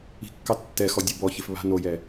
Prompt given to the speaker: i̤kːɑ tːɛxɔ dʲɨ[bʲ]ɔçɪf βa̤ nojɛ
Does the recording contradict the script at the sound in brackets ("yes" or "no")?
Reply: yes